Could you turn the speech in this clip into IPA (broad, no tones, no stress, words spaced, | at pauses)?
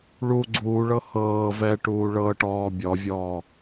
ɭu ɡ͡ǀuːɭɤ hɤː vɛʈuː ɭɤʈɔː bʲɔvʲɔː